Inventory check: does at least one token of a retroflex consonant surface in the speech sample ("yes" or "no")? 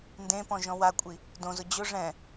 yes